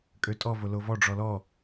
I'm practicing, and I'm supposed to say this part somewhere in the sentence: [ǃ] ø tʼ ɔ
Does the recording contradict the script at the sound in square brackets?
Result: yes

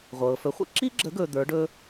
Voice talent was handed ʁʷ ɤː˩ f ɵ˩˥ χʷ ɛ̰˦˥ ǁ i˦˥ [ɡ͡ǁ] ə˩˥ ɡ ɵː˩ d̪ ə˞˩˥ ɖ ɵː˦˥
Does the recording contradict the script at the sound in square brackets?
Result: no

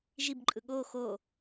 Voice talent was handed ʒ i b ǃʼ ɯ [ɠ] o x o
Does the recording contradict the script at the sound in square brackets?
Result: no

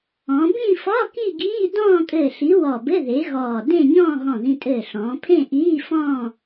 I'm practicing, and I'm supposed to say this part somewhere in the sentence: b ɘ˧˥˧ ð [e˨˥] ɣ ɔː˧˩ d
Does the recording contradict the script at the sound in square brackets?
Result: no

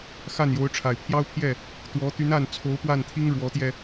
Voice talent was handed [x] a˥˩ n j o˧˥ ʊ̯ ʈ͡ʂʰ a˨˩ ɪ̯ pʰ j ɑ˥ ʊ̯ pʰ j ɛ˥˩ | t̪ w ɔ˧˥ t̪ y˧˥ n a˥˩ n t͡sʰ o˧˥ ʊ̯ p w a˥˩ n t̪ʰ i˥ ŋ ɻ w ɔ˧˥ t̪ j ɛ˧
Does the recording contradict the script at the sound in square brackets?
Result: no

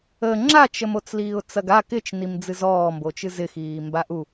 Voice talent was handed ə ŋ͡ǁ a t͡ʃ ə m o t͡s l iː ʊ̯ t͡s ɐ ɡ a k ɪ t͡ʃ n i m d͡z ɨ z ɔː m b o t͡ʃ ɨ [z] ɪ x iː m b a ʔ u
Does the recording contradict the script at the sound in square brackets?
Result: no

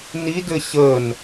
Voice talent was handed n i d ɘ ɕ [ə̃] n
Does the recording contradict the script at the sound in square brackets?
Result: yes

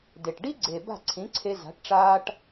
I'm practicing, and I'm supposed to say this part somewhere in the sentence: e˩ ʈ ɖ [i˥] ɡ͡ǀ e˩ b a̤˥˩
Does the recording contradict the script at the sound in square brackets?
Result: no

